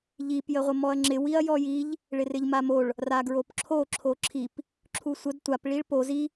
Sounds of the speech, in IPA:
ʎ i p j ə ʁʷ ə m ɔ ɐ̯ ŋ͡ǁ ɪ w i ɐ̯ j ɔ j i ʎ | ɭ ɪ r ɪ ʎ m a m o ɭ | r a ɡ ɹ o p ǁʰ o ǁʰ o ǁʰ i p | ǁʰ u sʷ ə d tʷ a p ɭ i ɭ p o z i

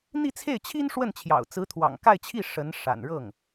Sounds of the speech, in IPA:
n̪ i˥˧ t͡sʰ e˥˩ ɪ̯ t͡ɕʰ i˥ n ʂ w ə˥˩ n t͡ɕʰ j ɑ̰˨˩ ʊ̯ t͡s ɹ̩˧˥ t̪ʰ w ɑ̰˨˩ ŋ k a˥˧ ɪ̯ t͡ɕʰ i˥˩ ʂ ə˧˥ n ʂ a̰˨˩ n ɻ ɤ˥˩ ŋ

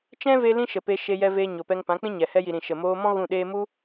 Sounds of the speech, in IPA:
t͡ʃ ɛ̃˦ v e˧ l ĩ˦ ʃ ə˨ p e˧ ʃ e˧ j ɛ˧ v eː˧ ɲ o˨ p ɛ˧ ŋ p ã˨˦ k͡p ĩ˦ ɲ ɛ˨ h ɛ˧ j i˨ ɾ ĩ˨ ʃ ə˨ m oː˧ m ɔ̃˦ ɣ ũ˦˨ ɗ eː˦ m u˦

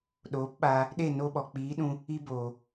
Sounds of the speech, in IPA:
ɗ oː˨˦ p ɓ aː˧ | ɗ e˦˨ n o˧ ɓ ɔ˨ k͡p iː˨˦ ɗ ũ˧ | i˧ b oː˨

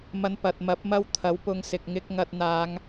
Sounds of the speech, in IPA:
m ɐ˧ n p ɐ˨ t̚ m ɐ˨˥ p̚ m ɐ˥ w t̪ʰ ɐ˨˥ w p ʊ˧ ŋ s ɪ˨ k̚ ŋ ɪ˧ k̚ ŋ ɐ˧ t̚ n̪ aː˨˧ ŋ

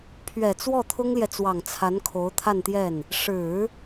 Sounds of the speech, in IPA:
pʰ ɥ ɛ˨˩ t͡s w ɔ˥˩ t̪ʰ ʊ˥ ŋ l j ɛ˨ t͡s w ɑ˨˩ ŋ t͡sʰ a˧˥ n kʰ o˧˥ ʊ̯ t̪ʰ a˥˧ n t̪ j ɛ˥˩ n | ʂ ɻ̩˨˩˦

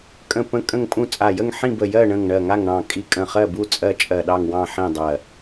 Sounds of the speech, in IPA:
kʼ ə̃˧˩ p ə̃˧˩ kʼ ə̃˥˨ ŋ pʼ ũ˥˨ t͡sʼ a˧˩ j ə˥˨ ŋ ħ ĩ˥˨ b ə˧˩ j ɜ˥˨ ɳ ə̃˧˩ ŋ ɳ ɜ˧˩ ŋ a˥˨ ŋ ɳ ɑ̃˧˩ kʼ i˧˩ kʼ ə̃˧˩ χ ɜ˥˨ b u˥˨ t͡sʼ ɜ˥˨ t͡ʃʼ ɜ˧˩ ɗ ɑ˥˨ ŋ w ɑ̃˥˨ ħ ĩ˥˨ dˤ ɜ˧˩

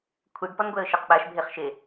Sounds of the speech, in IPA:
kʷʰ i ɖ p ɔ n ɡʷ ɛ ə̯ ʃ ɪ q ɓ a ʃ bʱ e χ ʃ e

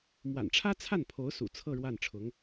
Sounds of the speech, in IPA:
m w a̰˨˩ n ʈ͡ʂʰ ä˥ t͡sʰ a˥˩ n pʰ o˧˥ ʊ̯ s ṵ˨˩ t͡sʰ ɤ˥˧ ɻ w a˥˩ n ʈ͡ʂʰ ʊ˧˥ ŋ

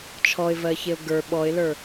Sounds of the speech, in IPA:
t͡ʃʰ ɔ ɪ̯ v ɜ ç e ʊ̯ ɡ ə˞ ɓ ɔ ɪ̯ l ə˞

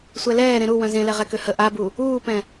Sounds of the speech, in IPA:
sʷ ɛ l ɛː ɾ ẽ ɾ u w œ̃ z ẽ l ɛ ʁ ɛ k ø h ə ʔ a b u | uː p ɛ̃

